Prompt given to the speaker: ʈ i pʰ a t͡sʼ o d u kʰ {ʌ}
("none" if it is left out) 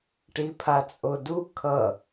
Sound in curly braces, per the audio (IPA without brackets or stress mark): ʌ